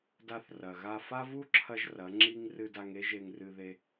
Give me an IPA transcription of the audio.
d a˧ θ r ɐ˨ ɣ a˧ f a˦ v u˦ ǁʰ ɐ˦ ʒ r ɐ˨˦ ŋ͡ǁ i˦ ŋ r ɨ˧ d a˧ ŋ e˦ ʒ e˧ ŋ r ɨ˧ ð e˧

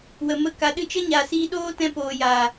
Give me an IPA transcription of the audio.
w ə˨ m ə˧ k a˨ ɗ ɨ˧ t͡ʃ ə˦ ɲ a˨ s iː˧ ɗ oː˦ t ɛ̃˧ p oː˨ j aː˨

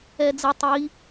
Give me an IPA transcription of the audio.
ɛ d͡z ə tˤ i

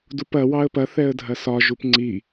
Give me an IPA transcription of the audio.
d u p ɐ w ɑ ə̯ p ɐ θ ɛ ə̯ dʱ ɐ s ɒ ʒ u p ŋ͡ǀ i

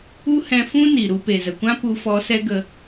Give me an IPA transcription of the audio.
u˦ h ɛ̃˧ f ũ˦ n i˨ ɾ u˧ p e˨ z ə˨ kʷ ã˦ p u˧ f ɔ˧ s ɛ˦ ɡ ə˧

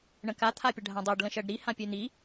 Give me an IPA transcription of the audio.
ɳ ə̃ k a t̪ʰ a pʲ ə ɖʱ ã dˤ ɜ ɖ l ə̃ ʃ ɜ ɖ ɾ i h ã pʲ ø n̪ i

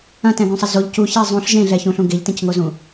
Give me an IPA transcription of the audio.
ɐ̃ t ɛ̃ ɡ ũ sˤ ɐ z o ʎ c u ç ɛ zˤ ũ ɬ ʒ ẽ ɮ ɛ ç ũ ɬ ũ ɡ e ʎ t ẽ c ŋ o z ũ

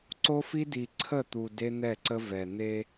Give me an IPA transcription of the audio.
ǀ o˦ f i˦ d i˨ ǀʰ ə˦˨ t̪ u˨ d e˦ n̪ ɛ˦˨ ǀ ə˦ v ɛ˨ n̪ e˦

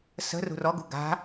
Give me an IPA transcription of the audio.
s ə̤ r ṳ r ɔ ɡ ṳ ɡ a̤

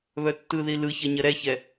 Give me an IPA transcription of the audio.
β œ tː ɯ ð i l ɯ ç ɐ ɲ ɐ ɾ ɛ ç ɛ

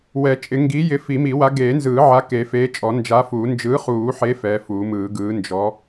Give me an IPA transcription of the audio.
w ɛ˨˩˦ t͡ʃʼ ɪ˨˩˦ ŋ ɡ i˨˥ j ɪ˨˥ f i˨˩˦ m i˨˩˦ w a˨˥ ɡ eː˨˩˦ n z ɯː˨˩˦ ʕ a˨˥ k e˨˩˦ f eː˨˥ t͡ʃʼ ɔ˨˩˦ n d͡ʒ a˨˥ f uː˨˩˦ n d͡ʒ ɯː˨˥ χ uː˨˩˦ ħ e˨˥ f ɛ˨˥ f uː˨˩˦ m ɯː˨˩˦ ɡ ɯː˨˥ n d͡ʒ ɔ˨˥

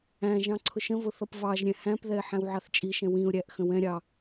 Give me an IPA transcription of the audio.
æ̃ ʒ ɑ̃ ǀʰ ʊ ʃ ə̃ v ʊ θ ʌ p v ɑ ʒ ɾʲ ɛ̃ h æ̃ p ð ɛ ɪ̯ ħ æ̃ w ʕ ɑ θ t͡ʃʼ i ʃ ɛ̃ w ĩ ʊ̯ ɾʲ æ ʔ x ə̃ w ɛ̃ ɾʲ ɑ

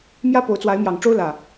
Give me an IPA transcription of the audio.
m j ä˦ p o˨˦ ʊ̯ t͡s w a˨˦ ɪ̯ m j ɑ˨˩ ŋ ʈ͡ʂ o˦ ʊ̯ l ä˨˩

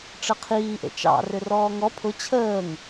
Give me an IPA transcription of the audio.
ʈ͡ʂ ə qʰ iː ʔ ḛ t͡ʃ ɑ̰ r ʏ r ɔː ŋ ɔ pʰ ʊ t͡ɕʰ əː ŋ

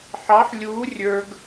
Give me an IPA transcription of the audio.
ħ ɑ ħ lʲ uː rʲ ə˞ ɡ

